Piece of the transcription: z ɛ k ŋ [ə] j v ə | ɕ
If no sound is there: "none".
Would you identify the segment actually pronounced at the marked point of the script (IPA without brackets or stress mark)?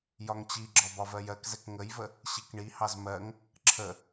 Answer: ə